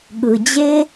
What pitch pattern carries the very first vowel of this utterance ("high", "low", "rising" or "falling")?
low